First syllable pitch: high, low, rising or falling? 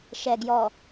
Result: low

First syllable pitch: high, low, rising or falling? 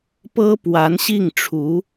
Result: high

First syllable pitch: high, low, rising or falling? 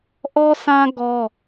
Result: high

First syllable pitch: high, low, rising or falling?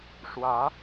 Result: rising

